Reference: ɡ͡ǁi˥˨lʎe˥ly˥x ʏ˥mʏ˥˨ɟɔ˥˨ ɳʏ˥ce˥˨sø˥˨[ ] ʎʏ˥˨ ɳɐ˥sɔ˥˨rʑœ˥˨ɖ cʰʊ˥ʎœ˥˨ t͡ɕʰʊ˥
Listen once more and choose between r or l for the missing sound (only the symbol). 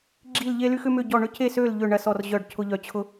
l